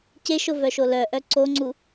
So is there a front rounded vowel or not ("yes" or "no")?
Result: yes